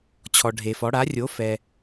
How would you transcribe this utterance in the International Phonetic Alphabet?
t͡ɕʰɔ˩ɖʱe˩fɔ˩˥ ɽa˩˥rʲo˩˥fɛ˩

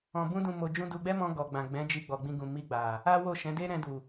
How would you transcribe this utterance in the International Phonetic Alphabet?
ɔ̃˧ bũ˦dũ˧ mo˨d͡ʒũ˧ du˧ɡ͡bɛ˦mɔ̃˧ ɡɔ˨ ɡ͡bã˨ɡ͡bɛ̃˨˦d͡ʒi˧ ɡ͡bɔ˨ɡ͡bĩ˧ɡũ˨ mi˧ɡ͡ba˨ | a˦wo˦˨ʃɛ̃˨˦ de˦ ɾɛ̃˧du˨

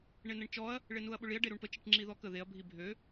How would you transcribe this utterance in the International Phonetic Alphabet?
ɳenəɳt͡ʃɔɐ̯ | ɭenuɐ̯ɓʊɭiɐ̯ ɖeɾuɳpə t͡ʃiʈŋ͡ǁiðɔkə ðeɐ̯ bʱibʱø

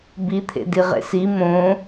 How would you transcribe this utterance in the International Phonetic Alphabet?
bit̪ʰḛ diʁḛsi mõ

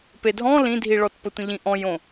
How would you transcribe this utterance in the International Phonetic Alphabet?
pedʱɔ̃ lĩdʱiɭɔtpə tʷə̃ʎĩ ʔɔ̃jõ

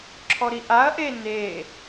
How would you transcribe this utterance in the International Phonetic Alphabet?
ǁʰɔɾiʔaɐ̯ʔe ne

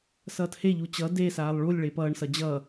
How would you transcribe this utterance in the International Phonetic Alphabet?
sʌːtheʎu t͡ɕʌ desaːlˠ ɭulʲ ɭepʌːɳsʌ d͡ʑʌ

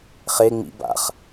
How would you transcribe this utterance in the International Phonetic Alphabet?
χe ŋ͡mḭ ba̰χ

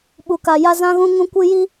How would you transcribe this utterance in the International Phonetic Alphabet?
ɓu˨ ka˨ja˦ zã˦ɣũ˦ ŋũ˦kʷɨ˦ ji˦

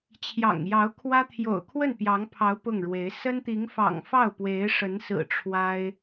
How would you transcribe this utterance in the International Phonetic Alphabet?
t͡ɕʰjɑ̰˨˩ŋjɑ˧˥ʊ̯kʰwä˥ t̪ʰjo̰˨˩ʊ̯kʰwə˥˩npjɑ˧˥ŋpʰɑ˧˥ʊ̯ pʊ˥˩ŋɻwe˧˥ɪ̯ sə˥nt̪i˧˥ŋfɑ̰˨˩ŋ fɑ˥˩ʊ̯pwe˧˥ɪ̯ʂə˧˥nsɹ̩˨˩ ʈ͡ʂʰwa˥ɪ̯

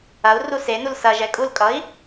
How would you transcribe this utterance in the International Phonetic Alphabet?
ɐu̯ rusenul sɐ ʒɛkʼulkʼʌi̯

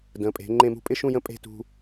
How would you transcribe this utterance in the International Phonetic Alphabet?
də̃˩˧pʼe̤˩˧ ŋ͡ǃẽ˥˧mṳ˥ pʼɪ˥ʃũ˥˧jə̃˥˧ pʼe̤˥˧tṳ˧

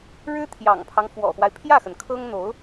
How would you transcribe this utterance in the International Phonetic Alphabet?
ɻɻ̩˥t̪ʰjɑ̰˨˩ŋpʰɑ˦ŋ fwɔ̰˨˩xwa˦ɪ̯ pʰjä˥˩xə˩n kʰɤ˥ŋn̪o˧˥ʊ̯

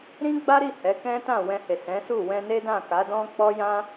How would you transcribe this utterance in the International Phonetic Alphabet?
ɾĩ˦ɡ͡ba˦ɾi˦˨ hɛ˨˦kɛ̃˦tã˦˨ wɛ̃˧he˨ sɛ̃˨˦su˦˨ wɛ̃˧ne˦ dã˦˨ ka˨˦dɔ̃˦k͡pɔ˦ jã˦

